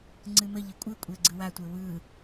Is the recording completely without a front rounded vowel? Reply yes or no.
yes